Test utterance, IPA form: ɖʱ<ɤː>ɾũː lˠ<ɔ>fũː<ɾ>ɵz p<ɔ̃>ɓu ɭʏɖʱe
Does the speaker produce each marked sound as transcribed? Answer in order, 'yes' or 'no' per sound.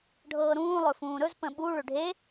yes, no, yes, no

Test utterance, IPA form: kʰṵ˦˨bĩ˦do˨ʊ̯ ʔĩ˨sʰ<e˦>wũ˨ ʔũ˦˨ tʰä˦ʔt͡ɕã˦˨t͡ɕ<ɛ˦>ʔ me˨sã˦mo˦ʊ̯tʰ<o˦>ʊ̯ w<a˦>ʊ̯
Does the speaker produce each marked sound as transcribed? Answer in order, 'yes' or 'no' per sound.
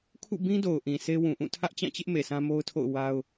yes, no, no, yes

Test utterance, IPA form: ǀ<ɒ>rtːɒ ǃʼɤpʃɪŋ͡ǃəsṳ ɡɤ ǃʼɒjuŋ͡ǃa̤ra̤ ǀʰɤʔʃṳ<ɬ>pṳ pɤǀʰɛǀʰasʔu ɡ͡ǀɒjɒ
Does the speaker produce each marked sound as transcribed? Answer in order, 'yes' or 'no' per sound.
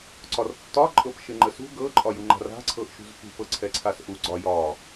yes, no

